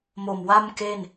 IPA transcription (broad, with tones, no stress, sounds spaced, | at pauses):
m o˨˩ m w a˥˩ m k e˥˩ n